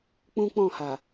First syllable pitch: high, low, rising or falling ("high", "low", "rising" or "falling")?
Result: high